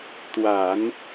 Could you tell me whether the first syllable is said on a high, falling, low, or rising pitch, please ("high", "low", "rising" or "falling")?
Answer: low